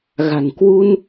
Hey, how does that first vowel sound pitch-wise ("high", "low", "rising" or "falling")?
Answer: low